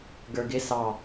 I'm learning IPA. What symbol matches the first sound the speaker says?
ɡ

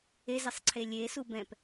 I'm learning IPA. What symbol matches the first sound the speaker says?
e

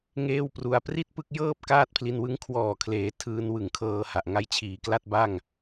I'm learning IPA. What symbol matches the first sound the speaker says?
ŋ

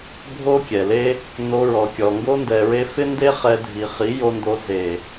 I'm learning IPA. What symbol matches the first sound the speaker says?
bʱ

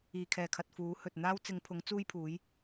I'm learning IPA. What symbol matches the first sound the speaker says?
iː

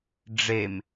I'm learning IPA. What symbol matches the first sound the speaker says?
ɖ͡ʐ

